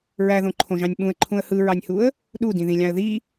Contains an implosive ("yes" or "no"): yes